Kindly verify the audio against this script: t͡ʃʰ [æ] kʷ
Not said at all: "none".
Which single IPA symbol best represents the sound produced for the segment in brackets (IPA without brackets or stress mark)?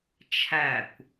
æ